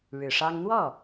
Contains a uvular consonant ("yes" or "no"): no